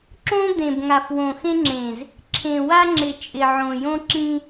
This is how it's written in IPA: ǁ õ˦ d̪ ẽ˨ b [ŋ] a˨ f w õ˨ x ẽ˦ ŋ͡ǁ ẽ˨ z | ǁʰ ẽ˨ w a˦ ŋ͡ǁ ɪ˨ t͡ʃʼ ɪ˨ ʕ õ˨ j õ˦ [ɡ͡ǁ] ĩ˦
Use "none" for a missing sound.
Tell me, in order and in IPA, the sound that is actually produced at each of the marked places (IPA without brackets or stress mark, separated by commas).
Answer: ŋ, ǁ